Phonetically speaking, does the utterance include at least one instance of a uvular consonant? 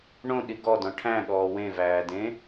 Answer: no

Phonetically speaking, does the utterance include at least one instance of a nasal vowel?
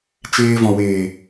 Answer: yes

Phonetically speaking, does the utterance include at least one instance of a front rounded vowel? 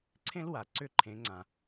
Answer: yes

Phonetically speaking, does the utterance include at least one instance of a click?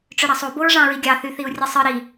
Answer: no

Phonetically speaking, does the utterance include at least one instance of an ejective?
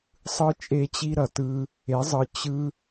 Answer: yes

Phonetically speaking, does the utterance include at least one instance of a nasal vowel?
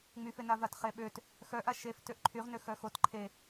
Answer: no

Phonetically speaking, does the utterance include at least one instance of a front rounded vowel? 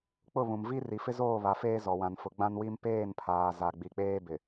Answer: no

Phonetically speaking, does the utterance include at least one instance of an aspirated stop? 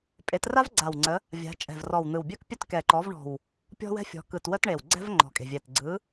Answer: no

